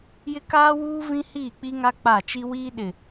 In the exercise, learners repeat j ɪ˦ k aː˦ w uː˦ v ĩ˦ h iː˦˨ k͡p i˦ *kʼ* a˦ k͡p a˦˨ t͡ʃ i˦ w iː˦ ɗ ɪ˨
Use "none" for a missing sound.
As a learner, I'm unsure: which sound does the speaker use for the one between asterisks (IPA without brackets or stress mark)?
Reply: ŋ